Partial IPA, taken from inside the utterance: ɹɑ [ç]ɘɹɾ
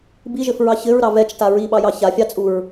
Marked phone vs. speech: correct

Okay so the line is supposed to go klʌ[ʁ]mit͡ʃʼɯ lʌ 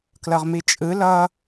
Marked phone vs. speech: correct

